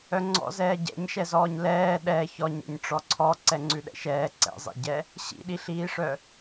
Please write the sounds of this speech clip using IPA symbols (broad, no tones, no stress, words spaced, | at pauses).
œŋ͡ǀɔ̰ zɛːɟɛ̰ɲʃɛzɔːɲ lɛː ɗɛ çɔɲɛ̰ɲ ʈ͡ʂɔǀʰɔ ǀɛŋ͡ǀʉɗɛ̰ʃɛː ǀɛ̰zˤḛɟɛ | ɕḭɗiɬiːʂœ